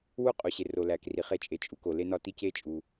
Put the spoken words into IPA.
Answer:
w u˥ qʼ u˩ ɕ e˩ r o˩ l æ˩ k r i˩ χ e˥ t͡ʃʼ e˩ t͡ʃʼ u˩ k o˩ l e˥ n ɒ˥ t i˥ c e˥ t͡ʃʼ u˩

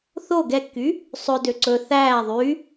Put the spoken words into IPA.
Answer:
θ o ɡ ɛ kː y | sˤ ɵ d ø ǀ ɵ θ æː ðˤ y

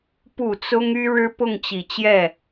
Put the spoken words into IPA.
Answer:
p u˨˩ t͡s ʊ˥ ŋ y˥ ɻ ɻ̩˥ p ʊ˥˩ ŋ t͡ɕ i˨˩ t͡ɕ j ɛ˥˩

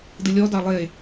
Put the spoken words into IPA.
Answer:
d ɨ lʲ ɔ d ɑ lˠ e

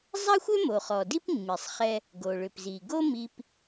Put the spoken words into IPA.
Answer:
zˤ a˥ xʷ ʏ˥ m o˩ χ ɔ˩ d i˥ p mː i˩ sˤ χ ɛ˧ | ɡ o˩ ɭ ʏ˩ p z i˩ ɡ o˥ m i˧ p

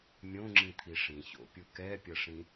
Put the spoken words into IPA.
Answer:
mʲ õ ŋ͡ǁ ĩ t̪ʰ i ʂ ĩ ç o̰ pʲ u k ɛ pʲ ʌ ʂ ĩ

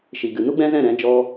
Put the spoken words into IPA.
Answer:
ʃ i˨ ɡ ɨ˨ n u˦ ɡ͡b ɛ̃˦ z ɛ̃˦˨ ɾ ɛ̃˨˦ d͡ʒ ɔ˧

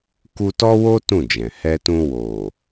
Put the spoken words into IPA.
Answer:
k u˧ t ɔ˦ w o˦ t ũ˦˨ d͡ʒ ɛ̃˨ h ɛ˧ t ũ˧ w o˨

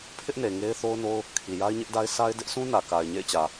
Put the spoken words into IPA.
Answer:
pʰ ɪ˦ ʔ n e˨ ŋ e˦ ɪ̯ θ o˦ ʊ̯ n o˦ ʊ̯ | kʰ i˨ j a˦ ɪ̯ ɲ ɪ˦ ʔ d a˦ ɪ̯ sʰ a˦ ɪ̯ d ɪ˦ ʔ s ũ˦ n ä˨ k a˨ ɪ̯ ɲ ḛ˦˨ ɪ̯ t͡ɕ ä˨

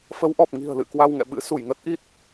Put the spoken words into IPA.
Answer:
f ə˨˦ w ʔ ɔ˨˩ p̚ ŋ i̤˨˩ ə̯ l ɨ̰˧˨ k w a˧ w ŋ ɛ̰˧˨ ɓ ɨ̰˧˥ s u˧˩ j ŋ ə˦˥ t̚ ʔ i˦˥ t̚

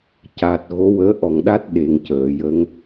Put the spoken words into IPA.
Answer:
c a˨˩ t̚ ɣ o˧˥ w əː˧˥ ʔ ɔ˨˩ ŋ ɗ a˦˥ t̚ ɗ e˨˩ ŋ c əː˨˩˨ j ə˧˥ ŋ

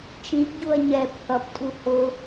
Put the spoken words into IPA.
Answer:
t͡ʃ ĩ p ɟ u ɐ̯ ɲ ɛ p θ ʌ p tʼ u h ʊ

